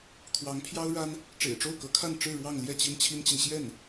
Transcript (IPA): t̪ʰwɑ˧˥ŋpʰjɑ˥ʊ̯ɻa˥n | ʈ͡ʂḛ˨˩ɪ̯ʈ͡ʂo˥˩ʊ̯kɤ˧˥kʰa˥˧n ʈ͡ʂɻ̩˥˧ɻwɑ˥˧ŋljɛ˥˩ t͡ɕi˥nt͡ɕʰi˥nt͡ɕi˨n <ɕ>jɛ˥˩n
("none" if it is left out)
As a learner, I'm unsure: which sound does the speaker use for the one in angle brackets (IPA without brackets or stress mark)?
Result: ɕ